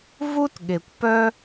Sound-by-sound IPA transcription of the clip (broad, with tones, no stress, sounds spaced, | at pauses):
v u˥ t ɠ e˩ kʷ p œ˦